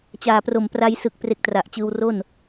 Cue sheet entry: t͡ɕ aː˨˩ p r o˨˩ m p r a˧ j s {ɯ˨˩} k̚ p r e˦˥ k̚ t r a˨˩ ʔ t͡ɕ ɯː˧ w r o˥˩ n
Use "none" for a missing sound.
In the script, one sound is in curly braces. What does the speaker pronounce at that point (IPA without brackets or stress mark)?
ɯ˨˩